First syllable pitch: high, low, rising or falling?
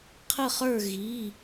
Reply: falling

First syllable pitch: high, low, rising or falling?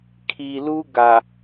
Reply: low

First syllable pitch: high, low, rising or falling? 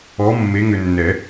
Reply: rising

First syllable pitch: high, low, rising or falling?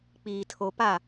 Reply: low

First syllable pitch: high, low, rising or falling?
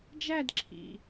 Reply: falling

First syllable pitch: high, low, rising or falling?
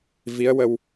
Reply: rising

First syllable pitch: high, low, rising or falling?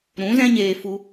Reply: rising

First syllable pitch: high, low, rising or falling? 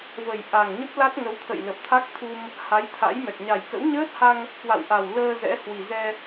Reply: low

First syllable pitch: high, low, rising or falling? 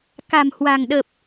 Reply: low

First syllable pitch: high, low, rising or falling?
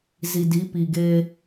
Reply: low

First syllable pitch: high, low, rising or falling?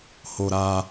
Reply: high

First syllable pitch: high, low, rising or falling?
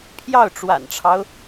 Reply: falling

